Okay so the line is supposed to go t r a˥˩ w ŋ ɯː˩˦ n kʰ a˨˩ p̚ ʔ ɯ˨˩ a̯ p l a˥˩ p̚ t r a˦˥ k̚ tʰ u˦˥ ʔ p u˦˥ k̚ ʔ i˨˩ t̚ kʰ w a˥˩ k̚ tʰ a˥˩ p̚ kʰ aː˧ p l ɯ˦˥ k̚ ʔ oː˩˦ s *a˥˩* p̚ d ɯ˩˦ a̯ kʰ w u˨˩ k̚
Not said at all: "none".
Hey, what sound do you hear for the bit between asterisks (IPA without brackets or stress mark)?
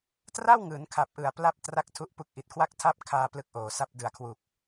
a˦˥